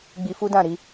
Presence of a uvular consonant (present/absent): absent